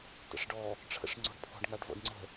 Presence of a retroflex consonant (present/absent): present